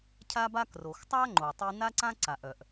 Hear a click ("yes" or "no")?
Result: yes